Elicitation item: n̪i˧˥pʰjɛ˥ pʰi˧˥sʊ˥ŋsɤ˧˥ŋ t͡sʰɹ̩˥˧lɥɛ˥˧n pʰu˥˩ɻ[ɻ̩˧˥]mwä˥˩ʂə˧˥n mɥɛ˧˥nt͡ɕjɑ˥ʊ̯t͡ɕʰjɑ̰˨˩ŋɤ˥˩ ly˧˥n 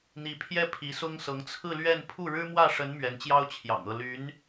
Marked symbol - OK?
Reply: no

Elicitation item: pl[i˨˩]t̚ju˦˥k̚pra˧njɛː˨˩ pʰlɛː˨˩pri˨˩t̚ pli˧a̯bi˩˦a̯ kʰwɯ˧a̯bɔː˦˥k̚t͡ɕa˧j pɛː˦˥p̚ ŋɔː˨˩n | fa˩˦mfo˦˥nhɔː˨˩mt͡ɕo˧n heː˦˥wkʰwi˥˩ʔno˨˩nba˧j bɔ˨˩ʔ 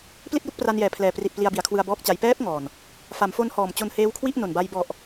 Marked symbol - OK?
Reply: no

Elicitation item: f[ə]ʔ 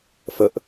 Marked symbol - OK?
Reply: yes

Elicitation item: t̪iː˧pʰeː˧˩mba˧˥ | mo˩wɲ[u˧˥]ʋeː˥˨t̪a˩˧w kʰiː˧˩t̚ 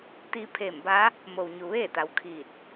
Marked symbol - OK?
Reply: no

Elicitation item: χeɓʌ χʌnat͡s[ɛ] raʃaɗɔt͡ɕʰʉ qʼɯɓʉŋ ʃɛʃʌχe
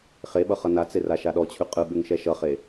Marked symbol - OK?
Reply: no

